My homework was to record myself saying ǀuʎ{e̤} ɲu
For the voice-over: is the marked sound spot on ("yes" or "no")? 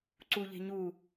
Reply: yes